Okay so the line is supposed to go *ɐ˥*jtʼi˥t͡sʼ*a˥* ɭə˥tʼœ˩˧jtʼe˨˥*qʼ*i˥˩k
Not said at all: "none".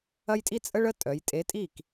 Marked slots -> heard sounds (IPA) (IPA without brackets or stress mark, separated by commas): ɐ˥, ə˥, tʼ